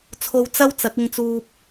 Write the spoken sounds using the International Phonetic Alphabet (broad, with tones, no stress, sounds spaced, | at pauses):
t͡sʰ o˧ w t͡s ɐ˥ w t͡s ɐ˨˥ k̚ ɪ˧ ŋ t͡s uː˧ p̚